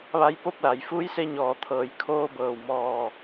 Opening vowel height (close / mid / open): open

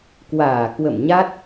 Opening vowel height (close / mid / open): open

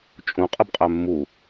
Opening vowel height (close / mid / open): close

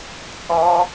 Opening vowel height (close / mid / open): mid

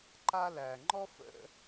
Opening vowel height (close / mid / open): open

